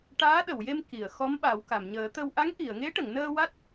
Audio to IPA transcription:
ʈ aː˧˥ ɗ ə˨˩˨ w j e˧ m k i˨˩˨ ə̯ x ɔ˧˥ m ɓ a˨˩˦ w k a˨˩˨ m ɲ əː˨˩˦ t̪ ə˧ w ʔ a˧˥ ŋ ʔ i˨˩˨ ə̯ ŋ e˧˥ ʈ ə˨˩˨ ŋ n əː˧ w a˦˥ t̚

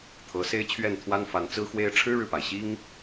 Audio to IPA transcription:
t̪ʰ ɤ˨˦ s e˦ ɪ̯ t͡ɕʰ ɥ ɛ˥˨ n t̪ʰ w a˦ n f a˨˦ n t͡s ɹ̩˦ x w e˦ ɪ̯ ʈ͡ʂʰ ɻ̩˦ ɻ ɻ̩˨ p a˩ ɪ̯ ɕ i˦ ŋ

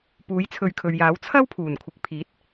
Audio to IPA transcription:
p uː˨˥ j t͡sʰ ɵ˨˧ ɥ kʰ ɵ˨ ɥ j aː˨˥ w t͡sʰ ɐ˥ w pʰ uː˨˩ n kʷʰ ɪ˨ k̚ pʰ iː˨˥ t̚

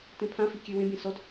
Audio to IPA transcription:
t ẽ pʰ ã f i kʲ e w ẽ bʲ ɛ̃ s ɔ d

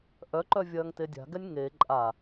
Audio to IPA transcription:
ʔ œ ǃ œ vʲ ɐː ŋ t e dʲ a̤ ɡ ɛ nʲ ŋ e ǃʼ a

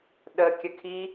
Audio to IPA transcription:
ɗ ə kʲ ə kʰ i

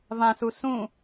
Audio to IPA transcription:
v ã s u s ũ

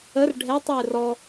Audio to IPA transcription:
ə r ɖʱ ɛ tˤ j ɪ r ɔ

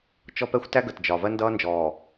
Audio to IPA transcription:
t͡ʃ ɔ˦ p ɛ˦ xʷ t æ˦ ɡ ə˨ t d͡ʒ ɒ˨ v ɜ˦ n d ʌː˦ n d͡ʒ ɔː˨

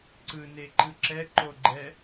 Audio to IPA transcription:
ǀ ɯ n e ǃ ɯ ǁ ɛ ǃ o ɡ͡ǃ ɛ

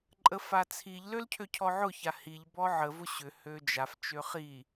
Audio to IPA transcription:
ǃʼ ə f a t͡sʰ i ʎ l ø l cʰ ø cʰ ɔ ʕ ʊ ç a h i ʎ b ɔ ʕ ə v ʊ ɕ ʏ h ø d͡ʒ a f t͡ʃ ø χ i

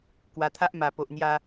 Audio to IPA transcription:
k w a˧ t̪ʰ a˦ ʔ m a˨˩ p o˨ ʔ n̪ j a˧

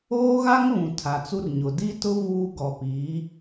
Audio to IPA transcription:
oː˦ ɣ a˦ ŋ β ũ˨ tʰ a˨ t͡s u˦ r ɲ ʊ˨ d i˦ t ʊ˦ v uː˦ ɡ ɔ˨ p iː˨˦

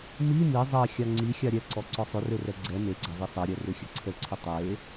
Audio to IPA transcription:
m i m i zˤ ɛ xʲ a ŋ͡ǀ i xʲ a ɾʲ ɛ ǀ ɔ ǀ ɔ sˤ ʏ r e r ɛ ɡ͡ǀ ɛ m e ɡ͡ǀ a v i sˤ ɛ ɾʲ ɛ r ʏ xʲ ə ǀʰ ə ǀʰ ʏ tˤ e

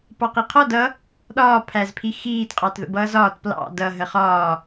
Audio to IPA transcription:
p ɑ q i qʰ ɔ d ʌ | ɗ ɒː pʰ æ z pʰ i x iː t qʼ ɑ t ð ə̰ b ʌː z ɒː t p l ɑ̰ d ʌ ɦ ə χ ɒː

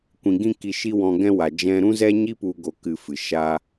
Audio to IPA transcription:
kʷ ĩ˨ ɡ ĩ˦ k i˧ ʃ i˦ w ɔ̃˧ ɡ ɛ̃˦ w a˨ d͡ʒ ɛ̃˧ ɾ ũ˦ z ɛ˦ ɲ i˦ p u˦ ɡ o˦ k ɨ˦˨ f ɨ˨ ʃ a˦

